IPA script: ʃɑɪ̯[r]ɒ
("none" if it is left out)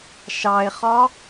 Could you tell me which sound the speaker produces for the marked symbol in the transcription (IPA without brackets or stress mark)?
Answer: χ